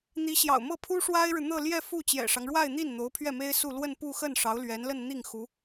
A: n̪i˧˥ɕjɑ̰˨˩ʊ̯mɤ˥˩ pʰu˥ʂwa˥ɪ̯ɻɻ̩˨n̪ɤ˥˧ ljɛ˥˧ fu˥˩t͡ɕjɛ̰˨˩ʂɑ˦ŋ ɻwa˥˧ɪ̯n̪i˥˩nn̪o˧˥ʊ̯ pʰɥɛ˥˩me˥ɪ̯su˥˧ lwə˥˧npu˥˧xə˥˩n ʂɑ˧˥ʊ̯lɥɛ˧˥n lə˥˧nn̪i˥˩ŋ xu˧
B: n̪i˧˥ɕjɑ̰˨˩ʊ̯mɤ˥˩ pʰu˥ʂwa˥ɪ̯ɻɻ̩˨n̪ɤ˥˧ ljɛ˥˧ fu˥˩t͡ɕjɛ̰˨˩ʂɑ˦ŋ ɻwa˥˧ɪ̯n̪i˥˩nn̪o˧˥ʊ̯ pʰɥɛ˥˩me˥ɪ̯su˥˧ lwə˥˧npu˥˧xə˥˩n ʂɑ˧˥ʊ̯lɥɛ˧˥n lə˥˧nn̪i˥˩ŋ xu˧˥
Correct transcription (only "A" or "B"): B